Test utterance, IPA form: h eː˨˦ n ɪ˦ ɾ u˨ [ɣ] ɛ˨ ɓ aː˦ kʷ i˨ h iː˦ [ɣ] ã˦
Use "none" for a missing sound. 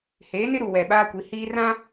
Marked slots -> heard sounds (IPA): w, r

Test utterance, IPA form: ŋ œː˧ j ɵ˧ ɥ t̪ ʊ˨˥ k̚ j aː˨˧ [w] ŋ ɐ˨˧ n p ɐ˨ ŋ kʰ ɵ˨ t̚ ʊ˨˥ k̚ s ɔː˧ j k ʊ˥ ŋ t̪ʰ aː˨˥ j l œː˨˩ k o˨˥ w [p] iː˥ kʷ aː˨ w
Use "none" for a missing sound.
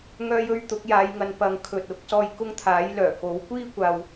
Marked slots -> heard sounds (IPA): j, kʷ

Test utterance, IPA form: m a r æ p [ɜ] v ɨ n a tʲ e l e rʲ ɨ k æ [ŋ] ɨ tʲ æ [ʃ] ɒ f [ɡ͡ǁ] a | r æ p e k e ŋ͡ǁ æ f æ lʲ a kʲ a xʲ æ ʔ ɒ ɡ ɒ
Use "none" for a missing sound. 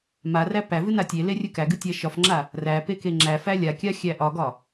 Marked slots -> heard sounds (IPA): æ, ɡ, ʃ, ŋ͡ǁ

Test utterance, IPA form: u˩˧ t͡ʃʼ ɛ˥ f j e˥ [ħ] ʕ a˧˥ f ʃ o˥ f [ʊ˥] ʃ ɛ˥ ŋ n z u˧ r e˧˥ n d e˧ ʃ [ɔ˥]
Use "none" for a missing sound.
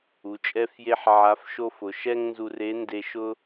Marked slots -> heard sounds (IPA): ħ, ʊ˩˧, ʊ˥

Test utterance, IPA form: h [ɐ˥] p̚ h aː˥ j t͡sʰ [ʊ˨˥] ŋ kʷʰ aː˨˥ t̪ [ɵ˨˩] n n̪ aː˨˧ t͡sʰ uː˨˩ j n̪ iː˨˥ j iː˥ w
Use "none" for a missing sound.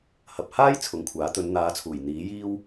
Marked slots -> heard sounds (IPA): ɐ˨, ʊ˨˥, ɵ˨˧

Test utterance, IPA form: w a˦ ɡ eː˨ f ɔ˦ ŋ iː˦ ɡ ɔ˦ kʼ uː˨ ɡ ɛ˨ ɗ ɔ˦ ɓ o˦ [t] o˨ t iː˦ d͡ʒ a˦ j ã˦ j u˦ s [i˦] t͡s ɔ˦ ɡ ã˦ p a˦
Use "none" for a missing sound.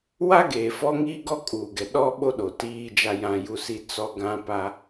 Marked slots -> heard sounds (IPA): ɗ, i˦

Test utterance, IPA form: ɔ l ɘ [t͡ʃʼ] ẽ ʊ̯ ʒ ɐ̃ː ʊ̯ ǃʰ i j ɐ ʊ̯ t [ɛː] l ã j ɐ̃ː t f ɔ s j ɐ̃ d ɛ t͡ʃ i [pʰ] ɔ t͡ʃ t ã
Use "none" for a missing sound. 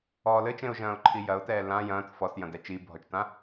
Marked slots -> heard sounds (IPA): t͡ʃ, ɛː, bʱ

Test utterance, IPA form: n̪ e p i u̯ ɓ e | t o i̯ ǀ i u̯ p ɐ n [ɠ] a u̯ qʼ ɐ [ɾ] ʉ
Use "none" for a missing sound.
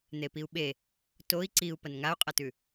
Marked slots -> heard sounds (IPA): ŋ, t

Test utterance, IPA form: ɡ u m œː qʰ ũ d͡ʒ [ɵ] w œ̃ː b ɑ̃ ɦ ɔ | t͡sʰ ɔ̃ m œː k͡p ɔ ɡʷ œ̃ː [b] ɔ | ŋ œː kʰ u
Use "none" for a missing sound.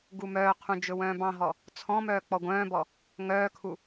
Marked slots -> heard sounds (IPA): ɵ, b

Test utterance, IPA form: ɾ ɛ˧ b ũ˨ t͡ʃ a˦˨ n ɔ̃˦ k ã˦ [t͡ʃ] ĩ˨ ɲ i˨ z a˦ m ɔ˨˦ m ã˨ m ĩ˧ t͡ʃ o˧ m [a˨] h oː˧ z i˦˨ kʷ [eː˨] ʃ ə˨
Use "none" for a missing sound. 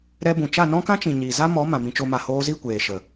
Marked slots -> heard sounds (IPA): t͡ʃ, a˨, eː˨

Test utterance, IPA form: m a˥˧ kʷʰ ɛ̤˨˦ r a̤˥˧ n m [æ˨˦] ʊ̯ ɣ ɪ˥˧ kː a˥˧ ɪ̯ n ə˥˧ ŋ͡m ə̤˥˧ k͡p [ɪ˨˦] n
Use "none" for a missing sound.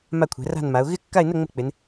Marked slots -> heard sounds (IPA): a˨˦, ɪ˨˦

